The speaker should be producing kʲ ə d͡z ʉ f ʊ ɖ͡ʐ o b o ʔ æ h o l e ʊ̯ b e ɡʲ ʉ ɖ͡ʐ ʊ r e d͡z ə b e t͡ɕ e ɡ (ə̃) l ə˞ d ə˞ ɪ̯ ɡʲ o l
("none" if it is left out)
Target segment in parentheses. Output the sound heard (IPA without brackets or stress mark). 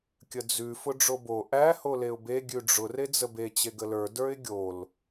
ə